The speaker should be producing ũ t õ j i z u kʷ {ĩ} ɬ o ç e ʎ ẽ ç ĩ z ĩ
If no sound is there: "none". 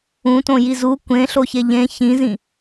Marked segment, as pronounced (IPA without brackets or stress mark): ẽ